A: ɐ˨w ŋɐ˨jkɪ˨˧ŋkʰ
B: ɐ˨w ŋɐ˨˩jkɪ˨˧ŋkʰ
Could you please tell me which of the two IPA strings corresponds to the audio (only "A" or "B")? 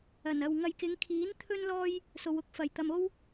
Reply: A